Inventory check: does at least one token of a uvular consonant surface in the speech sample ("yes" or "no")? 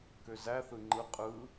yes